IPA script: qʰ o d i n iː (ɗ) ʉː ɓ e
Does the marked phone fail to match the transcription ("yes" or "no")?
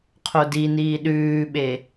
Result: no